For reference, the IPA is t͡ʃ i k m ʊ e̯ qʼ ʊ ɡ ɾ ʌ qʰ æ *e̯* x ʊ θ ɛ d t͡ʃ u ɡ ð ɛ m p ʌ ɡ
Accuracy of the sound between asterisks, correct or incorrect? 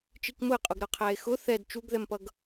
correct